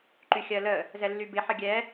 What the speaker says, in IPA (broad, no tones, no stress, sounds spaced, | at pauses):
ǃ y xʲ ɜ l ə | z ɛ lː y b ɪ ħ ə ɡʲ ɛ